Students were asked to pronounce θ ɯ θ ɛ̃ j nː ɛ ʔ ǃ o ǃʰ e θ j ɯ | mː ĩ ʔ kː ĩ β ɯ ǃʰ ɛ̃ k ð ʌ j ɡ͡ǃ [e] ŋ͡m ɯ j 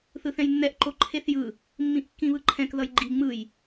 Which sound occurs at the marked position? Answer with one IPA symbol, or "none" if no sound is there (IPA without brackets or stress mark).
i